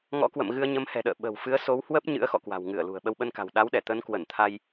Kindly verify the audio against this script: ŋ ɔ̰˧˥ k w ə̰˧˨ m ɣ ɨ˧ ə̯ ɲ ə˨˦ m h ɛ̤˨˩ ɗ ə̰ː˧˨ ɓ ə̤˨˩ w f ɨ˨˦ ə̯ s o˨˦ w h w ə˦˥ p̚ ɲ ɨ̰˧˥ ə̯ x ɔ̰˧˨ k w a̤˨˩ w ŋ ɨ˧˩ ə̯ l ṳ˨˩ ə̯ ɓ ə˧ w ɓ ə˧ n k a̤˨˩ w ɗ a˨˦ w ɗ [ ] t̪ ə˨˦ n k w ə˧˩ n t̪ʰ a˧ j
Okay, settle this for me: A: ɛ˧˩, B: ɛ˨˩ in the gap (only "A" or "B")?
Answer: A